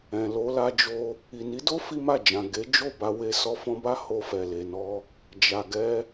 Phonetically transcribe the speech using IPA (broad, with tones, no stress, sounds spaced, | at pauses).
ɛ̃˨ l o˧ l a˧ d͡ʒ o˧ | i˨ n i˨˦ d o˦ f i˦ m a˦˨ d͡ʒ ã˨ ɡ e˨˦ d͡ʒ o˦˨ b a˧ w e˧ s ɔ˧ f ɔ̃˧ b a˦ h o˧ f ɛ˨ l e˨ n ɔ˧ | d͡ʒ a˨ ɡ ɛ˧